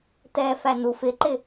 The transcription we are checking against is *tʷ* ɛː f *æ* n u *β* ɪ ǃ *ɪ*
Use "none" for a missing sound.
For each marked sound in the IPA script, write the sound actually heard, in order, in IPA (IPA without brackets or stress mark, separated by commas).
t, æ, f, ɪ